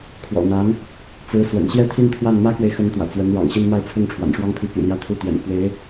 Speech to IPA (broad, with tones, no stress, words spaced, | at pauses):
kʰwɔ̰˨˩n̪a˧˥n | t͡sɹ̩˧˥swə̰˨˩n ɕjɛ˥t̪ʰi˥˧nt̪ʰwa˥˩n mä˥kwe˨ɪ̯xə˧˥n t̪wä̰˨˩t͡swə˧˥n ɻɑ̰˨˩ŋɕi˥˧n ma˥˧ɪ̯t͡sʰʊ˥˩ŋ ʈ͡ʂʰwa̰˨˩nʂwɑ˥ŋpʰi˧˥ py̰˨˩ljä˥t̪ʰu˥˩t̪jɛ̰˨˩n fwe˧˥ɪ̯